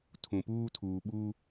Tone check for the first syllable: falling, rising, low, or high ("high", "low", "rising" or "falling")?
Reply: low